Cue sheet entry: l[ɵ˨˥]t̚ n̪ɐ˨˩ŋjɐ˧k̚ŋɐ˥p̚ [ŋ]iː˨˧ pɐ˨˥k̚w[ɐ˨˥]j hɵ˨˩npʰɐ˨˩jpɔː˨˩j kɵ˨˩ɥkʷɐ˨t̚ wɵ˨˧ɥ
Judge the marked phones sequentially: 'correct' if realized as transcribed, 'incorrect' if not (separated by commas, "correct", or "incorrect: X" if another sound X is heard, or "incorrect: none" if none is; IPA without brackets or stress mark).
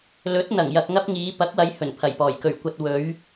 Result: correct, correct, incorrect: ɐ˨˧